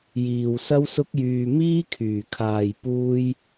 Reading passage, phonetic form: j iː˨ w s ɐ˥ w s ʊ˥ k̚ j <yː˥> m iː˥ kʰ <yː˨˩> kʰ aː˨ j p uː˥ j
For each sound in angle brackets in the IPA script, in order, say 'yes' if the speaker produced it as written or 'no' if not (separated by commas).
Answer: no, yes